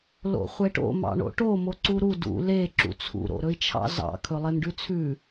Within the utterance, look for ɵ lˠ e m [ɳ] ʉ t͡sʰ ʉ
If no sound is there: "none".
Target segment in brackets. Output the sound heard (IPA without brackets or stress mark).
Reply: ɖ